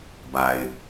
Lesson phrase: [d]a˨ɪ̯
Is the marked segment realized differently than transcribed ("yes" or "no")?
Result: yes